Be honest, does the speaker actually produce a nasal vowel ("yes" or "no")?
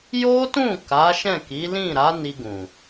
yes